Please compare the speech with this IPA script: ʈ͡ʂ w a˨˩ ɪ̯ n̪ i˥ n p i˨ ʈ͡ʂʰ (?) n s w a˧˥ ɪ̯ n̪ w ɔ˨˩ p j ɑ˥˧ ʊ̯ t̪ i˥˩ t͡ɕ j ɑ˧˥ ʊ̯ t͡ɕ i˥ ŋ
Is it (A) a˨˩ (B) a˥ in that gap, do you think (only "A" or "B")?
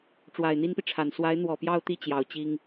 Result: A